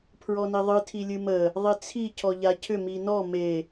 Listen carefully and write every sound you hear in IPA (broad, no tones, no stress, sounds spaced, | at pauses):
pʰ ɹ ɔ n i ðˤ ɨ tʰ i lʲ ɨ m ə | ðˤ i t͡sʰ i cʰ ɔ ʎ a cʰ ʏ m i n ɔ m e